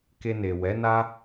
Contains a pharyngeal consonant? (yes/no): no